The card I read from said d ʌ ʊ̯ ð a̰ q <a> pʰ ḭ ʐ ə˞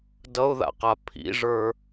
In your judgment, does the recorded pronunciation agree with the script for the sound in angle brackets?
yes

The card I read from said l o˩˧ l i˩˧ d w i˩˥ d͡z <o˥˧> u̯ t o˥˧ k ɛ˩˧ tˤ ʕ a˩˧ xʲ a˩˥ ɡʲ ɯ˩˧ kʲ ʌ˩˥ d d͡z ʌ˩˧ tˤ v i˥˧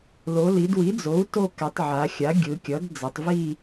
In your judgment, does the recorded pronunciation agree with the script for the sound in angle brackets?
no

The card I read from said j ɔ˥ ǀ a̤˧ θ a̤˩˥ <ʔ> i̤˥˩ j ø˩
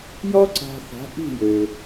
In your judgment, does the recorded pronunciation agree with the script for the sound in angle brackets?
yes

